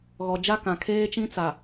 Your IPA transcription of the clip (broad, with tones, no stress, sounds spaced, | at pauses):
ɣ ɔ˨ d͡ʒ a˦ k ã˨ kʰ eː˦ t͡ʃ ĩ˦ t͡s a˨